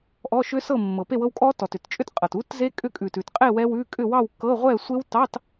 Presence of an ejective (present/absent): present